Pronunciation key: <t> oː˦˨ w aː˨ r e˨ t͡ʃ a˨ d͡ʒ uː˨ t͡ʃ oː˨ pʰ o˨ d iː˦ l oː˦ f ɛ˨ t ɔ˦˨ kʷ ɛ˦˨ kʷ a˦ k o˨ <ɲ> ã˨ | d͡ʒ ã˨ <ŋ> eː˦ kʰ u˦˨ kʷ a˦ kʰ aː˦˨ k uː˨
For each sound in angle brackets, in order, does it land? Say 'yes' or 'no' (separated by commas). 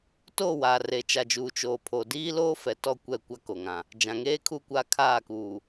yes, no, yes